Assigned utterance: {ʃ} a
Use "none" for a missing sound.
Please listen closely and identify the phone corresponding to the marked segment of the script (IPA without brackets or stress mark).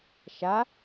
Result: ʃ